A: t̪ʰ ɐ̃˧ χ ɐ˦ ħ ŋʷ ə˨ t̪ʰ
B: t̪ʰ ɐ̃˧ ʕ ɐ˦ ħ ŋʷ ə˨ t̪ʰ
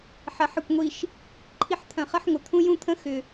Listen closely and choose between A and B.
A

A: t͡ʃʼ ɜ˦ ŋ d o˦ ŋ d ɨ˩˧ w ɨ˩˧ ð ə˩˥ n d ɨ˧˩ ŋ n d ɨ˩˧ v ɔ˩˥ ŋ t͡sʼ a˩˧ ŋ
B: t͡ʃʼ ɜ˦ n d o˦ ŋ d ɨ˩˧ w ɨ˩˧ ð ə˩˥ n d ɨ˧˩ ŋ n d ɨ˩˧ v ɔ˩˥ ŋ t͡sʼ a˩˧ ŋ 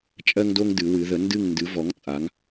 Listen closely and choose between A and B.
A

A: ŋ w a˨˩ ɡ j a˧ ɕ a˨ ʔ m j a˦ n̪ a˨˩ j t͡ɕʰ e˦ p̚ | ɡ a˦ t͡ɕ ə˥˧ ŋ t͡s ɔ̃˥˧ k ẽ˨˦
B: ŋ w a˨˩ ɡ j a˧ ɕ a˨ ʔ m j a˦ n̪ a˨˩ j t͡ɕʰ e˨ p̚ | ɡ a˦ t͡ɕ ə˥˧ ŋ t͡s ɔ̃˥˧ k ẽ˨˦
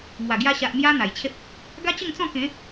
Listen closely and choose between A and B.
A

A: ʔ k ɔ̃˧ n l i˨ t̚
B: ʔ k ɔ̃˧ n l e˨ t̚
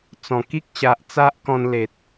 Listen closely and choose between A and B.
B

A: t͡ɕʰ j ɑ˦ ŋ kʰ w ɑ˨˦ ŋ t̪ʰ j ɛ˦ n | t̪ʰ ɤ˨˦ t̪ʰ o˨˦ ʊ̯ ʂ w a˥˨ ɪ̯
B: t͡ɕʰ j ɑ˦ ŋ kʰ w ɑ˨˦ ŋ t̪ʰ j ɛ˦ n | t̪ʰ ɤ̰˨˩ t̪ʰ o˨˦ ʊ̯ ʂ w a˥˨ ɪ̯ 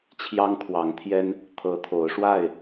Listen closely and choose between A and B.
A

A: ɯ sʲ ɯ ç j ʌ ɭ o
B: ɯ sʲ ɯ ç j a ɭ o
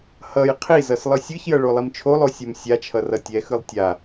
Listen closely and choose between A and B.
A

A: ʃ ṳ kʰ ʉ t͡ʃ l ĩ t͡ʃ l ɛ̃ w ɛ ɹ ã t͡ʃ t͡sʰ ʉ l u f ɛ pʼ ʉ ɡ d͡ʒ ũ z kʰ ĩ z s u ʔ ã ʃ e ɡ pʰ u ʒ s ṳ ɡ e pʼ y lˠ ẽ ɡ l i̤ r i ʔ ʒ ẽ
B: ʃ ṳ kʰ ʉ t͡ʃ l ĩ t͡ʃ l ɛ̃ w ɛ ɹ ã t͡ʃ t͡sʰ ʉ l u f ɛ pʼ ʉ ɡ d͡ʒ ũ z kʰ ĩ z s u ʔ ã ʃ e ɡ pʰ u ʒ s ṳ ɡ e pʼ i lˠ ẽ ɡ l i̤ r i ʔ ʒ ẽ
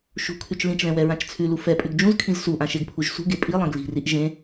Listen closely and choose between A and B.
B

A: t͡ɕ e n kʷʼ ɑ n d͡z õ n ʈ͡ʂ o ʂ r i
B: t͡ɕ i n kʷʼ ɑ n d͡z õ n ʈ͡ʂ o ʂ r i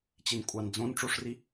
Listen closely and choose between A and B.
B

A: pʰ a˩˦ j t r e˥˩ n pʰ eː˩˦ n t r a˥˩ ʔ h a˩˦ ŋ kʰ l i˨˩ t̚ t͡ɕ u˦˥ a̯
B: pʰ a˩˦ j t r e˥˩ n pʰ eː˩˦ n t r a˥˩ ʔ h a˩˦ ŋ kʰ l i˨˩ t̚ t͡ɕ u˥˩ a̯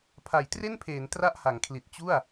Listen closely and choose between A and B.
B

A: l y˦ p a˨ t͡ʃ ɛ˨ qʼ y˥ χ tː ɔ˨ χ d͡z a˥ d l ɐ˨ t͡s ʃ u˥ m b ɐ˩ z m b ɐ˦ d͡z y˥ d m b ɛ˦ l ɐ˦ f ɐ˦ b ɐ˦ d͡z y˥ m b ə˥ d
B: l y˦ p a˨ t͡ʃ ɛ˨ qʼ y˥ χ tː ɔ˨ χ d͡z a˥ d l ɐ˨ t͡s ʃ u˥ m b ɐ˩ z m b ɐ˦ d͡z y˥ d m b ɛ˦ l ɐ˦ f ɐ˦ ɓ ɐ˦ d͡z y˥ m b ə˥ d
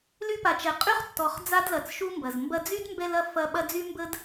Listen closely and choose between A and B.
B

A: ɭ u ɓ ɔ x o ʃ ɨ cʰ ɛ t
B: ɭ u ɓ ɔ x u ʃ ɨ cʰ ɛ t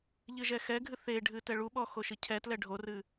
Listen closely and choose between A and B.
A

